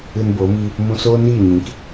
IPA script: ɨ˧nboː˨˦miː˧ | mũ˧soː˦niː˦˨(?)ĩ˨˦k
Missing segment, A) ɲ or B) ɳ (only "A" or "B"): A